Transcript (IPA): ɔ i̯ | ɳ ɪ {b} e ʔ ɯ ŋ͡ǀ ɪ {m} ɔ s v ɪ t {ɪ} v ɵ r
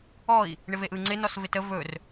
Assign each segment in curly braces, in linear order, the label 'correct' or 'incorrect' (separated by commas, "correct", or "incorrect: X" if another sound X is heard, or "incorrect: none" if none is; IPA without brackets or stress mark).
incorrect: v, incorrect: n, incorrect: ə